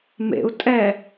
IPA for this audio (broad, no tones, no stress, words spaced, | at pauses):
mḛu̯ tʼɛ